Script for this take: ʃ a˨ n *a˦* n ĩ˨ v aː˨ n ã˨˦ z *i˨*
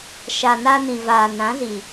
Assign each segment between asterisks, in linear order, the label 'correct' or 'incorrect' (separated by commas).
incorrect, correct